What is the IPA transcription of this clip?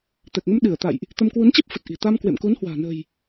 t̪ ɛ˨˩ k̚ ŋ ə˧ m ɗ ɨ˧˩ ə̯ t̪ a̰˧˨ j ʔ | t̪ ə˧ m k w u˨˦ n t͡ɕ e˦˥ p̚ f ə˨˩ t̚ ʔ i̤˨˩ t̪ a˧ m k w ḛ˧˨ m k u˨˦ n h w a̤ː˨˩ n ə̤˨˩ j

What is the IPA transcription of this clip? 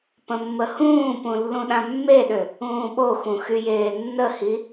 p ə̃ mː ə h ũː p ũ lː ũ ɗ ã mː e ɗ ø | ũː ɓ o x ũ x y j eː nː ə h i

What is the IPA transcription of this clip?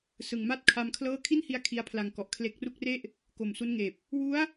s ɯ˨˩ ŋ m a˥˩ t̚ kʰ a˧ m kʰ l ɤː˥˩ kʰ i˥˩ n h i˧ a̯ kʰ i˦˥ a̯ pʰ l a˧ ŋ k ɔ˨˩ ʔ kʰ l e˦˥ k̚ r u˥˩ k̚ r e˥˩ ʔ | k o˨˩ m s u˦˥ n ŋ eː˨˩ p̚ | w u˦˥ a̯

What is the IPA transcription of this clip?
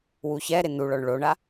w u ç ɛ ɾ ɪ n u ɭ ɔ ɳ ɭ o ɳ a

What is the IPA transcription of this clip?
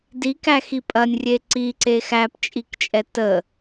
d i k æ x i pʼ ɐ nʲ rʲ e ǀ i ǀ e x æ p t͡ʃʼ i k t͡ʃʼ ɛ t ə

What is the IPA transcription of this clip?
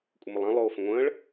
kʷʼ ə m o lˠ ã lˠ oː f ə̃ ŋʷ ə̃ː ɭ

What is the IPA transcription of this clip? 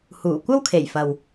h uː˨˩ kʷ ɐ˥ w kʰ e˨˩ j f ɐ˨ w

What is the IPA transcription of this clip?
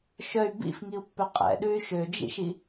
ʃ œ y̯ b ḭ f ŋ i u̯ pː œ qʼ ɛ̰ ɗ ʉ y̯ ʃ ø d͡ʒ ḭ ʃ i

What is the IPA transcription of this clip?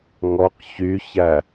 ŋ ɔ q ç y ç æ

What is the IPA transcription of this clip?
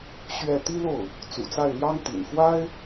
ɕ ɥ ɛ˥˩ t̪ i˥ l o˥˩ ʊ̯ | t͡s ṵ˨˩ t͡s a˥˩ ɪ̯ l j ɑ˥ ŋ t̪ ḭ˨˩ n x w a˥ ɪ̯

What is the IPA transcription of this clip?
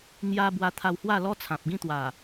ŋ j a˧ b w a˧ t̪ʰ a˧ w h w a˥˧ l ɔ˦ t͡sʰ ã˨ p̚ ɡ ĩ˦ t̪ w a˨˩

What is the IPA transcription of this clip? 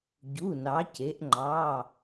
ɟ u˩˧˩ n ɑ˩˧ c e˩˧ ʔ ŋ͡ǃ ɑ˩˧˩

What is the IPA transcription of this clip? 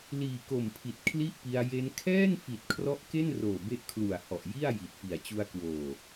l iː˨˩ k o˨˩ m pʰ i˨˩ t̚ kʰ l i˥˩ ʔ p i˧ a̯ j e˦˥ n kʰ ɛː˥˩ n f i˨˩ t̚ kʰ r ɔ˦˥ ʔ k e˥˩ n r oː˨˩ b e˥˩ ʔ kʰ l u˨˩ a̯ h ɔ˨˩ ʔ j i˥˩ a̯ j i˨˩ t̚ f i˨˩ a̯ t͡ɕ u˧ a̯ k w oː˨˩

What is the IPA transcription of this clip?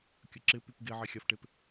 kʲ ə ǁ ɪ p y p ɡ e ʕ e xʲ a f ʈ e p

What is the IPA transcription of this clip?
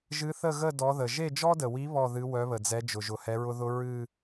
ʒ ɨ˧˥ θ ə˥˧ ɣ ə˥˧ d ɔ˧˥ ð ə˨ ʒ e˥˧ d͡ʒ ɔ˥ d ə˨ w i˧˥ β ɔ˥˧ ð ɨ˧˥ w œ˧˥ β ə˨ d͡z ɛ˧˥ d͡ʒ ʊ˨ ʒ ʊ˨ h ɛ˧˥ ɹ ʊ˥ ð ʊ˥ ɹ ɨ˥˧

